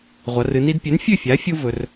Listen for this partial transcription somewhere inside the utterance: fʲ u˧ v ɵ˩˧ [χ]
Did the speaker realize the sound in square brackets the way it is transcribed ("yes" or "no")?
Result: no